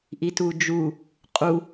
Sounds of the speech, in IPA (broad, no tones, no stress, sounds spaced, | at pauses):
ʔ i t u d͡ʒ u | qʼ u